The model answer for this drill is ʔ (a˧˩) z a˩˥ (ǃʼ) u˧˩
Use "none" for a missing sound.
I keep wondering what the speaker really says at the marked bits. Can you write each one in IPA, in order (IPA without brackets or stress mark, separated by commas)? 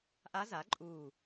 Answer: a˧˥, ǃʼ